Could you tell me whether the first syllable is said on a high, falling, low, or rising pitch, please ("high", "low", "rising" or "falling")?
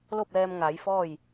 falling